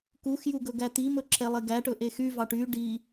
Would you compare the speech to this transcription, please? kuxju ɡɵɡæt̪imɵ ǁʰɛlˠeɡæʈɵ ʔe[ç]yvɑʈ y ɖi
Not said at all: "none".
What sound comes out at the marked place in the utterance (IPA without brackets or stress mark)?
x